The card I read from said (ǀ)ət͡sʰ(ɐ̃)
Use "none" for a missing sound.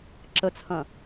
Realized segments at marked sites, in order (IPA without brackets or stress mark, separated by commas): ǁ, ɐ̃